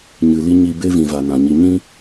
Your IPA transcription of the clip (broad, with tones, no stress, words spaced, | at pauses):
ɲɨ˨li˦ ɲi˧ be˦vĩ˨va˨ nã˨ɲi˧ ɲĩ˦